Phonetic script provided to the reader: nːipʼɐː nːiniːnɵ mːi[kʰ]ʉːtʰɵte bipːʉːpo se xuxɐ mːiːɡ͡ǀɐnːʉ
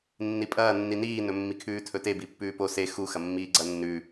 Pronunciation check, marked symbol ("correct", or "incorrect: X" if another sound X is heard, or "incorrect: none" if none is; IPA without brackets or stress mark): correct